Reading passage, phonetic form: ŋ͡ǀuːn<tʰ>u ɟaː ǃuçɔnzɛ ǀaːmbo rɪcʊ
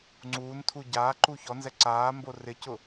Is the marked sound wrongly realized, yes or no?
no